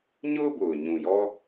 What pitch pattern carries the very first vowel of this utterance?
high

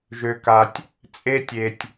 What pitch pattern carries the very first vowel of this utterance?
low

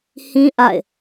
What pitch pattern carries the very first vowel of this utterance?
high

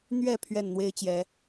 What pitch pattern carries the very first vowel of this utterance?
falling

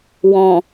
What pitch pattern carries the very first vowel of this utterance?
low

